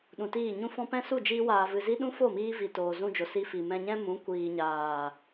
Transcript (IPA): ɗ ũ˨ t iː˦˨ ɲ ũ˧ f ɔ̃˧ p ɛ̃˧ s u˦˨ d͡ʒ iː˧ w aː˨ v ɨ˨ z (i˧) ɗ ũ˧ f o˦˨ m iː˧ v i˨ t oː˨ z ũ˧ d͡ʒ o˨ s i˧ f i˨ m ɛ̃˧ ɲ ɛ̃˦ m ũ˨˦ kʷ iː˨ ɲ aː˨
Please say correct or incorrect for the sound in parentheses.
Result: correct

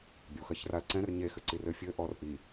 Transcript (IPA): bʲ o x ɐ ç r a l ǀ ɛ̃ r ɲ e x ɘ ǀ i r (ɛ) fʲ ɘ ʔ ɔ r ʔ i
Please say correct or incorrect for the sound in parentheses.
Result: incorrect: ɘ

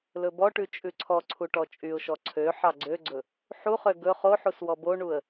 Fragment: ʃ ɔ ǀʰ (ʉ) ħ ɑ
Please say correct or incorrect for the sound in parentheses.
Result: incorrect: ø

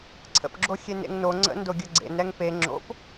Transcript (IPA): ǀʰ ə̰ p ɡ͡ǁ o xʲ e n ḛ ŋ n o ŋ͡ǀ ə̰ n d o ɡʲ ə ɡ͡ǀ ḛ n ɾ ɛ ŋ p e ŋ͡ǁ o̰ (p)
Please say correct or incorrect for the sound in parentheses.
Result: correct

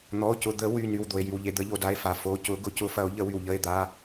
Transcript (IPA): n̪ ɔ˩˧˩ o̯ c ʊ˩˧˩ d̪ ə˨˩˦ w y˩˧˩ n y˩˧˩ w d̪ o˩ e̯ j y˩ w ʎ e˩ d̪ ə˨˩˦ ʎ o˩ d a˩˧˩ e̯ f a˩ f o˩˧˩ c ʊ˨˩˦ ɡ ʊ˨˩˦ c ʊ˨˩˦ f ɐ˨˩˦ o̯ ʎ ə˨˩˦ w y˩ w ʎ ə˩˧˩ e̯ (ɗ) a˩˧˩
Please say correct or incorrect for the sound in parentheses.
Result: incorrect: d̪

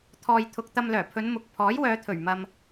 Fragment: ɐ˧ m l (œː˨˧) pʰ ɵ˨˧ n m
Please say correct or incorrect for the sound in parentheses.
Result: incorrect: œː˨˩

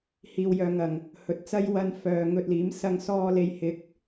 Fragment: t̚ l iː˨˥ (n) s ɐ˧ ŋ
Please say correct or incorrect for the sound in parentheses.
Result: incorrect: m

